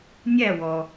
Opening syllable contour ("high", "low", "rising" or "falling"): falling